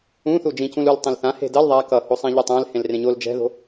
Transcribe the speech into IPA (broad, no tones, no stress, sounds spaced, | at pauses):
ũ θ u d͡ʒ ĩ c ũ l u l tˤ ẽ l θ ã h e̤ d ʌ l ðˤ a k ʌ h o sˤ ɛ̃ ʎ ɯ tˤ ã l h ẽ l r ẽ ɲ o l d͡ʒ ɛ̤ ð o̤